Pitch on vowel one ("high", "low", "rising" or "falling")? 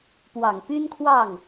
low